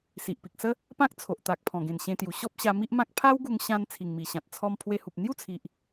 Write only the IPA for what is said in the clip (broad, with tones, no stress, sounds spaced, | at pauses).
s i˨ ʔ p i˨ k̚ s ə˦ | p ã˦ k̚ t͡sʰ o˨ ʔ t̪ a˨ k̚ pʰ ɔ̃˨˩ ɡ ẽ˨˩ n ɕ ẽ˧ t̪ j u˨˩ ɕ ɔ˦ p̚ ɕ a˧ m i˦ ʔ m ã˦ k̚ pʰ a˦ w ɡ u˧ ŋ ɕ ã˧ n t͡sʰ i˨˩ ŋ m i˨˩ ɕ ã˨ t̚ t͡sʰ ɔ˧ m pʰ w e˧ h u˨ p̚ n̪ j u˥˧ t͡sʰ i˨ ʔ